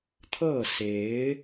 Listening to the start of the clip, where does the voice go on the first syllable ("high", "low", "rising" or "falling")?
falling